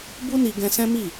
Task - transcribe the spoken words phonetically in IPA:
b u˦ n i˧ ɡ ɛ̃˧ s ɛ̃˦ m i˦˨

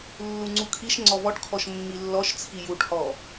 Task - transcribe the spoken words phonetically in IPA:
lː u ŋ͡ǀ u kʰ i ʃ ŋ͡ǀ ɔ v ɔ ʈ kʰ ɔ ʃ mː i lː ɔ ʃ t͡sʰ i j u ʈ h ɔ

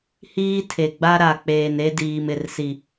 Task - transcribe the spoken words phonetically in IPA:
h iː˦ tʰ e˨ ɡ͡b a˦ ɾ a˨ k͡p eː˨ n e˦ d iː˨ m ɪ˨ r s i˨

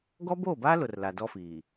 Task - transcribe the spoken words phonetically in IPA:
ɡ ɔ˦ b oː˦˨ b aː˦ l ʊ˨ r l a˨ d ɔ˦ f iː˨

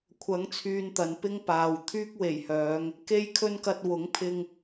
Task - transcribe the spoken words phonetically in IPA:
kʷʰ ɐ˨˥ ŋ t͡sʰ yː˨ n t̪ ɐ˨ n p ɪ˥ ŋ p aː˨ w t̪ʰ yː˥ k̚ w e˨˩ j h œː˨˧ ŋ | k e˥ j kʰ ɵ˥ n k ɐ˧ t̚ w ʊ˨˥ ŋ pʰ ɪ˧ ŋ

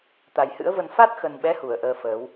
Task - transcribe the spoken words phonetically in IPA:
t̪ a˨˩ j h ɨ̰˧˥ ə̯ v ə˧ n f a˦˥ t̚ x ə˨˩ n ɓ ɛ˨˦ h u˧˩ ə̯ ʔ əː˧ f əː˨˦ w

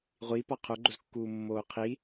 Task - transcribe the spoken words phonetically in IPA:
ʁʷ i p ɒ qʰ o ɡ͡ǃ o z kː uː mː oː qʰ i

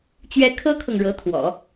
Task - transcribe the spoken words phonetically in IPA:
t͡ɕ ɥ ɛ˥ kʰ ɤ˥ kʰ ɤ˨ ŋ ɻ ɤ˧˥ t̪ʰ w ɔ̰˨˩˦

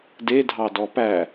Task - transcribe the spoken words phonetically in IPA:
d e dʱ ɑ d ɔ p æ

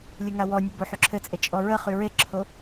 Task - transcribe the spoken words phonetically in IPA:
lʲ ɘ ŋ a w ɔ nʲ ʊ b o ħ y ǁʰ ɘ t͡sʼ e t͡ʃʼ ɔ ɹ ə χ y ɹ e ǁʰ o

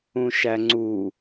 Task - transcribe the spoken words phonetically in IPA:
ũ ʃ æ ŋ͡ǀ u

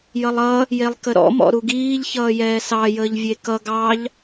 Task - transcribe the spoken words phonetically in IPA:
j ʌ lˠ ʌ | j e lˠ k ə ɾ ɔ̰ m ɔ̰ ɾ u ɡ iː ʎ ç ʌː j ɛː s ɑ j əː ʎ vʲ e k ʌ ɡ ɑ ʎ

